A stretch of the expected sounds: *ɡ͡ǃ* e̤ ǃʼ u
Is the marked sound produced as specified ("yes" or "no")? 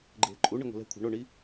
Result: yes